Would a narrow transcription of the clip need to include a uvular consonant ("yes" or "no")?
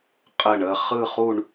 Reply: yes